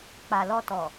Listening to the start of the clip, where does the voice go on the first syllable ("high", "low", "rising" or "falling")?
low